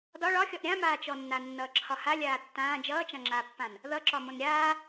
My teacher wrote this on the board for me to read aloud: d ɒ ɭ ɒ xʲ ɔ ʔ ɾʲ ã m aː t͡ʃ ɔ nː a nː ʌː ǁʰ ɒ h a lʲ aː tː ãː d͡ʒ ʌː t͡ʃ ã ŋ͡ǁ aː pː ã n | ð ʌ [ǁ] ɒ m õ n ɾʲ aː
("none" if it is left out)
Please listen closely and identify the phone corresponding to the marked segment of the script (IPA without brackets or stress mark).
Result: ǁ